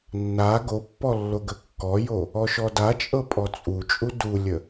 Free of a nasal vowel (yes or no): yes